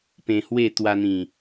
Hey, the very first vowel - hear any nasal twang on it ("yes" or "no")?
yes